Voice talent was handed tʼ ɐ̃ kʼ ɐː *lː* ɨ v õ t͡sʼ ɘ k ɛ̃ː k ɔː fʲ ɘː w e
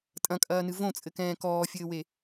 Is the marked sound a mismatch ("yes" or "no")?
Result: yes